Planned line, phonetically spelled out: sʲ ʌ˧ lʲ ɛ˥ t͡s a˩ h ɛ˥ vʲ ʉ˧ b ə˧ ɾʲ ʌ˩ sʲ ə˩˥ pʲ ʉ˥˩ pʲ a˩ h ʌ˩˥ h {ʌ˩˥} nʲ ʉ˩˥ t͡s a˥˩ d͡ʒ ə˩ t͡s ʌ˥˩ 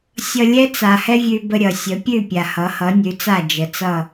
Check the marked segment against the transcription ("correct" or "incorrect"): correct